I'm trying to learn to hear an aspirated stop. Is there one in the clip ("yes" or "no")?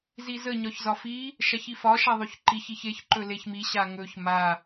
no